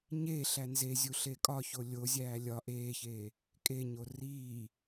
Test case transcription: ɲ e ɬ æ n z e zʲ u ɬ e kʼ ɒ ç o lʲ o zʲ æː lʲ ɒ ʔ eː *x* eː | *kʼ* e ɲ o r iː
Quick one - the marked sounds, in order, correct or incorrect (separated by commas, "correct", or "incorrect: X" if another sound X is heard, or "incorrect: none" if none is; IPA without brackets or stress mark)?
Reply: incorrect: ç, correct